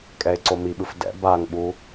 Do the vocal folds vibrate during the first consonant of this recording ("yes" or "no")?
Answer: no